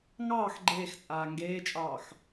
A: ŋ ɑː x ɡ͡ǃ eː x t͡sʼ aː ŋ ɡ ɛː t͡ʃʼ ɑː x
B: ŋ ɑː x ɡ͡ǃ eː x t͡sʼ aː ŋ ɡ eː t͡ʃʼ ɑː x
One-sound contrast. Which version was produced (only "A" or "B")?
B